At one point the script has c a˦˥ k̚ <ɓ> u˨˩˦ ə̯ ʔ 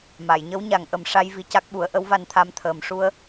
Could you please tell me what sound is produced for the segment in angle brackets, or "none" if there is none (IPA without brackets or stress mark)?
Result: ɓ